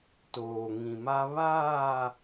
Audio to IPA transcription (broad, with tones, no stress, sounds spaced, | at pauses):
t oː˨ ŋ ĩ˨ m a˦ β aː˦˨